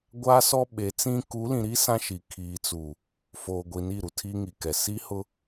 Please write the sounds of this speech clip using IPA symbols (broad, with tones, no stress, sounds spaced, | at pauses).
ɡʷ aː˦ s ɔ˦ ɓ e˨˦ t͡s ĩ˦ k u˨˦ l ĩ˨ ɾ i˦ s ã˦ ʃ i˨ kʰ iː˨ t͡s u˨ | f oː˨ ɡʷ i˨ n i˦˨ ɾ u˨ tʰ i˦ ŋ i˨ k ɛ˨ s i˦ h ʊ˦